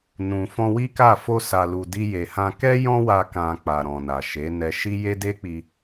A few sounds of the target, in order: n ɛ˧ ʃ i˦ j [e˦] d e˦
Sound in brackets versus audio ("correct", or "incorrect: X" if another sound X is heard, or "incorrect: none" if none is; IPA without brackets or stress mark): correct